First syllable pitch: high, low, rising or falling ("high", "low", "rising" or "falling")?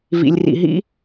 low